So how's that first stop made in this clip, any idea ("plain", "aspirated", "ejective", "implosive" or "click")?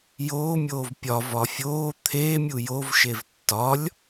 plain